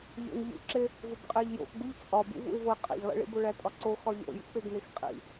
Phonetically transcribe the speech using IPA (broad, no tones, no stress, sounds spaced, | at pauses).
ʎ o̰ n ʎ ṵ ǁ e | v o b qʼ e ʎ j o̰ x ɡ͡b u ʎ t͡sʼ ɒ b ṵ v ṵ ɪ̯ v o ɪ̯ qʼ ḛ ʎ lˠ ḛ ɭ ḭ b o ɭ æ tʼ ɒ ǀ o x ɒ ʎ o̰ j ṵ k͡p e ɡ n e x qʼ ḭ